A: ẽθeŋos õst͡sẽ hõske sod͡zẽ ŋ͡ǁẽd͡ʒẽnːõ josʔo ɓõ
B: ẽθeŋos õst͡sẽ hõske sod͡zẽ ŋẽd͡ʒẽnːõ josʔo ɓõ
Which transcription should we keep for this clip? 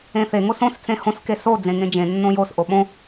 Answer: B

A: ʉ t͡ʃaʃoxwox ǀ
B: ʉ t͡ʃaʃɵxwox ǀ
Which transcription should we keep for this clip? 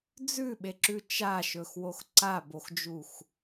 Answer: B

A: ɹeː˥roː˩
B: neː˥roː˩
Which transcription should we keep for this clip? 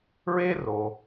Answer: A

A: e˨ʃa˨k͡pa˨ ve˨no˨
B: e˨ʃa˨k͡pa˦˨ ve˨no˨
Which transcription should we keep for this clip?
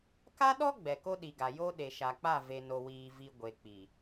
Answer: B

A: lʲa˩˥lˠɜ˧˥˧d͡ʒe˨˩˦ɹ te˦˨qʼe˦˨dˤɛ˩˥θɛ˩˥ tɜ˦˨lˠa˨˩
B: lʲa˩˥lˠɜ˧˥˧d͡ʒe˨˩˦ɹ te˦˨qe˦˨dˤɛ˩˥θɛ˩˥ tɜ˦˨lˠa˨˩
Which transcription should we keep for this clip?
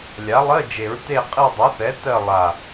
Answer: A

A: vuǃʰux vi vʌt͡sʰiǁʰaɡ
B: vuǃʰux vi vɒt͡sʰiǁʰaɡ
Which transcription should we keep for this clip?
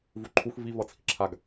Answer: A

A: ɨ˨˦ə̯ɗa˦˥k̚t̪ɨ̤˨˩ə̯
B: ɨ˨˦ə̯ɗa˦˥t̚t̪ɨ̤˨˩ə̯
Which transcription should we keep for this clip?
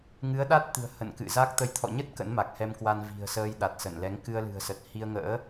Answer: B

